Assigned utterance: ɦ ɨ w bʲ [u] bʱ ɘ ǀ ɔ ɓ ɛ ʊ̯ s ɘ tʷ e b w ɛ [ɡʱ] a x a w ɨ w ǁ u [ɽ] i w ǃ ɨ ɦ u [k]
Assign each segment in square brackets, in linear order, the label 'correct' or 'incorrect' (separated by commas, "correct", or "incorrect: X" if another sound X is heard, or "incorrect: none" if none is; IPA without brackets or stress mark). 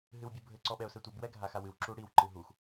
correct, correct, correct, incorrect: x